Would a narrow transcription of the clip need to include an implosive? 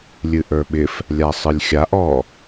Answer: yes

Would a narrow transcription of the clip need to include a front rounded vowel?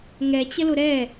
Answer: no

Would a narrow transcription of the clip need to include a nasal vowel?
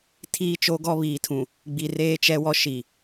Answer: yes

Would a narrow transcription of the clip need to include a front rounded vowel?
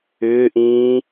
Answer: yes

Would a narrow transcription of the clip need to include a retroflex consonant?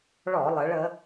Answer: yes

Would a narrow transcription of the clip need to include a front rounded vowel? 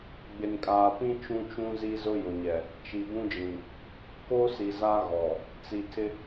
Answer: no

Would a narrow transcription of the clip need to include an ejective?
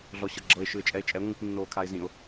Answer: yes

